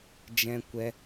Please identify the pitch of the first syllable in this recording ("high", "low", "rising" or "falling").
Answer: high